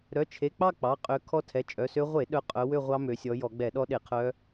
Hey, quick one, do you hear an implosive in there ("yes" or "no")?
yes